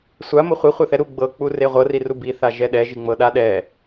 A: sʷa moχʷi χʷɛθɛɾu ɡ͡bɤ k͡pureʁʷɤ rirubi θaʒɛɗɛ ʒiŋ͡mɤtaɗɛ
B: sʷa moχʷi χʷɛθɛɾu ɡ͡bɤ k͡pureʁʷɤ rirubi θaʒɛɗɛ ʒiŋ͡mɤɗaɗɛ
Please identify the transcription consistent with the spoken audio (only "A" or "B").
B